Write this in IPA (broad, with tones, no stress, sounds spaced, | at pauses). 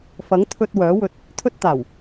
f ɐ˨˥ ŋ t̪ʰ ɵ˧ t̚ w œː˨˥ w ɵ˧ t̚ | t̪ʰ ɵ˧ t̚ t̪ aː˨˩ w